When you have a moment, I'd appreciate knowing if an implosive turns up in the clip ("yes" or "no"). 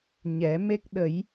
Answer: yes